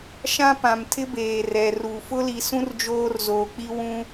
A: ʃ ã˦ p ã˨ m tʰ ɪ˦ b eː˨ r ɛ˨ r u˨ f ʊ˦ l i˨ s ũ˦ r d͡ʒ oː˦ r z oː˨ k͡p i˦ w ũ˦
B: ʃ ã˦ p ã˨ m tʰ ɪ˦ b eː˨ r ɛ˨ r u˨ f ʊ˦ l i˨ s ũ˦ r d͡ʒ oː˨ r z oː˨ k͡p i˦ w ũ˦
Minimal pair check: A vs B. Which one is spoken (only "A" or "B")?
A